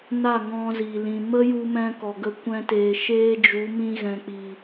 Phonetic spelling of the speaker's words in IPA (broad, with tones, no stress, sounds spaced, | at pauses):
n a˦˨ ŋ ɔ̃˧ z i˨ l ĩ˨ m ə˦ j u˧ m ɛ̃˧ k ɔ˨ ɡ ə˧ kʷ ɛ̃˧ t eː˨ ʃ eː˧ d͡ʒ u˨˦ m ĩ˧ ɣ ɛ̃˨ k͡p i˨